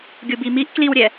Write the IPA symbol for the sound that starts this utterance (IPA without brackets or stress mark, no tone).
ɡʲ